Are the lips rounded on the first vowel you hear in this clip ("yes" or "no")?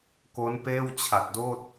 yes